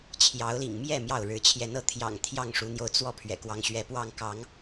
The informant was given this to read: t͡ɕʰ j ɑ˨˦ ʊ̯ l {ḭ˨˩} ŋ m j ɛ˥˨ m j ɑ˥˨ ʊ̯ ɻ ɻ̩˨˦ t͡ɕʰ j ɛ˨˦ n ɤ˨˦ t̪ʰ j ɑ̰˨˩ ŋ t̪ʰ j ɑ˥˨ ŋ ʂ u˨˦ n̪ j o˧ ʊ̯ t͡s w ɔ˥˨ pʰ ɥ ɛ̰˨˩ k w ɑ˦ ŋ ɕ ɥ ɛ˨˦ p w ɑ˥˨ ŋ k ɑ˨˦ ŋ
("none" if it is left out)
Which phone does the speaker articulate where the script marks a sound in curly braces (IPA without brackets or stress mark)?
ḭ˨˩